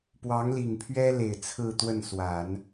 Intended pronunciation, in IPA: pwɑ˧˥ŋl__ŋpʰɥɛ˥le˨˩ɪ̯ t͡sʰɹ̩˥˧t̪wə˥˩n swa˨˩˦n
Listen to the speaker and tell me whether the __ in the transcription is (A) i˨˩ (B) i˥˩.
A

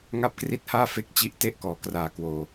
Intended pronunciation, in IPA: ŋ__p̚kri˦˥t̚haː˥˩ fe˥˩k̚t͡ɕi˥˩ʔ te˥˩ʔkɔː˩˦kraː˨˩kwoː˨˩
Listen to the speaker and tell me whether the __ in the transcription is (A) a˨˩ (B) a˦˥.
B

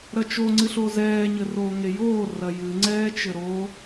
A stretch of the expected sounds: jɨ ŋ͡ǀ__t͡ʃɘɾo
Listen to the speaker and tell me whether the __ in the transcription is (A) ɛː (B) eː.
A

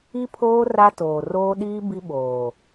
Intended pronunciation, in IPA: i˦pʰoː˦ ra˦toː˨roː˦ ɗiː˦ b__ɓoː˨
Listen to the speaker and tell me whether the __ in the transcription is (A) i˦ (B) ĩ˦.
A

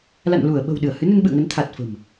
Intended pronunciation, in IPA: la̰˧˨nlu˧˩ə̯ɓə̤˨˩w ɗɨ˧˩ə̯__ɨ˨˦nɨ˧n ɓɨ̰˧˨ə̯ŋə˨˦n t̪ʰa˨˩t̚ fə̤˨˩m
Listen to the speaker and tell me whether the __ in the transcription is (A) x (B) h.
B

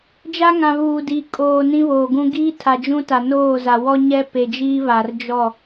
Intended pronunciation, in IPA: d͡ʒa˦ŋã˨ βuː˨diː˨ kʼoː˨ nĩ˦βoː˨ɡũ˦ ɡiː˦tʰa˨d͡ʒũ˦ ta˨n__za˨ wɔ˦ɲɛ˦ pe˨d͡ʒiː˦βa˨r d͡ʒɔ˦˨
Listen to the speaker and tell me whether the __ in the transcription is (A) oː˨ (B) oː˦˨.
B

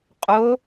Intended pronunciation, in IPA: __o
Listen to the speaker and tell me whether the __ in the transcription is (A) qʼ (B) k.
A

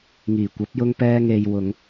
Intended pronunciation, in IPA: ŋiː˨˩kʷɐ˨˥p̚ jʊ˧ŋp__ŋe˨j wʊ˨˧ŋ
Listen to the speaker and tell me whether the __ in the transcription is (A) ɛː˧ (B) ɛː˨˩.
A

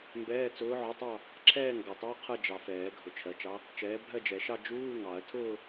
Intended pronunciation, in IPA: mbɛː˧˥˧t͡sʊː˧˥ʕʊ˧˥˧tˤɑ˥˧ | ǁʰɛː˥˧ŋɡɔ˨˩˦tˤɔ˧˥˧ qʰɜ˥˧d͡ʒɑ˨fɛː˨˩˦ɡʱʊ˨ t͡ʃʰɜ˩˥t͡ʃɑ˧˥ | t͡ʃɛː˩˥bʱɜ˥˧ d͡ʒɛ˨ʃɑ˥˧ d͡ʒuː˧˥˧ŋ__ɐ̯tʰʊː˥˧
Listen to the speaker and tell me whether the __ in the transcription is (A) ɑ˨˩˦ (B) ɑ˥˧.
A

